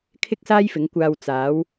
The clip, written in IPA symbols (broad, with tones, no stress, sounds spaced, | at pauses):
kʰ ɪ˥ k̚ s aː˥ j f ɪ˨˧ ŋ kʷ aː˧ w t͡s aː˨˧ w